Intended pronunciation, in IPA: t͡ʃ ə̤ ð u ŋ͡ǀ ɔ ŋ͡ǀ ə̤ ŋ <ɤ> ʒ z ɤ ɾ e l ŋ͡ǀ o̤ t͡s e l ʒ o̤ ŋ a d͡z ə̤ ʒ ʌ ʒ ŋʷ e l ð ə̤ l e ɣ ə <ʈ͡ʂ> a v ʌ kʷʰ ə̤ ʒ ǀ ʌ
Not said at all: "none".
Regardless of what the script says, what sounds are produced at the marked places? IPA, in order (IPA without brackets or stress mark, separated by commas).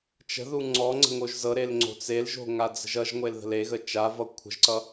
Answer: o, t͡ʃ